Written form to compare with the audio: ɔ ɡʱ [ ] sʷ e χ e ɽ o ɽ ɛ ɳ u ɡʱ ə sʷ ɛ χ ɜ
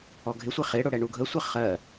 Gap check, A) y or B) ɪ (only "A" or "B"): B